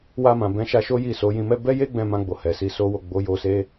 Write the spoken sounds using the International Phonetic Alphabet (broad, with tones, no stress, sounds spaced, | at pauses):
w a˧ m ã˨ b ɛ̃˨˦ ʃ a˧ ʃ o˦ j i˦˨ s o˨˦ j ĩ˧ m ɛ˦ b ɛ˦ j e˦ ɡ͡b ɛ̃˧ m ã˧ ɡ͡b o˨ h ɛ˨ s i˧ s o˦ w o˦˨ ɡ͡b o˨˦ j o˧ s e˦